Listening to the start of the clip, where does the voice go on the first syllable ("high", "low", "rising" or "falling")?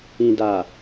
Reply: low